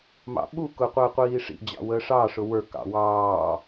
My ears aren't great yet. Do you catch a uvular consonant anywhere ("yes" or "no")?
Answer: yes